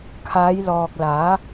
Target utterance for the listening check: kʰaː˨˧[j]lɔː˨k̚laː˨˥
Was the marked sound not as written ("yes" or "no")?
no